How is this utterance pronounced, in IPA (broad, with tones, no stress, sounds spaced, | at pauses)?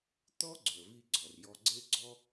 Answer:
t̪ ɔ˥ ɡ͡ǀ ɵ˩ ə̯ v i˧ ɡ͡ǀ ɔ˩ r j ɔ˧ ɡ͡ǀ e˥ ɡ͡ǀ ɔ˥